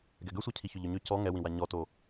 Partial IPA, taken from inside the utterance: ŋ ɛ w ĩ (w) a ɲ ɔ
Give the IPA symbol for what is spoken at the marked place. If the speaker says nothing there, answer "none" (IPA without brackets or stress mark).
w